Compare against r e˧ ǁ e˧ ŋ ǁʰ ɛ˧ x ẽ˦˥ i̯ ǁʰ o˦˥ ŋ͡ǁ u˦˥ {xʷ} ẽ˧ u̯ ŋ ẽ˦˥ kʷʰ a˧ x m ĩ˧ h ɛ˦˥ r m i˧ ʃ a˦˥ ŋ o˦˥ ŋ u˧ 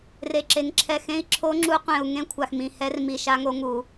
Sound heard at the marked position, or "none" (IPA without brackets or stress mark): qʷ